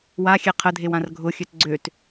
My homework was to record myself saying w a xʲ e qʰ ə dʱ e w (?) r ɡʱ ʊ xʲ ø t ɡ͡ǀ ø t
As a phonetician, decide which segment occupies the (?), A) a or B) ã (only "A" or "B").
B